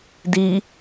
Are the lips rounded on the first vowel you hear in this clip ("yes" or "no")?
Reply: no